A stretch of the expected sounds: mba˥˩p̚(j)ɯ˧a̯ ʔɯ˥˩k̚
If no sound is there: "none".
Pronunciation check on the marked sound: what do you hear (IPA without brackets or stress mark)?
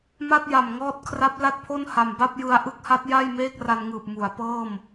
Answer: j